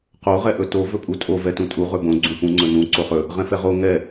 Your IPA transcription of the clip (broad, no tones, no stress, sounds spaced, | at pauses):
q o ʁ ɛ ʔ ɵ t o v ɵ pʼ u tʼ o v ɛ t ũ tʼ u ʁ ɵ b õ ɡ͡ǀ ũ p ũ ŋ͡ǀ ɵ n ũ ǀ o χ ɵ | ʁ ɛ̃ f ɛ ʁ o ŋ ɛ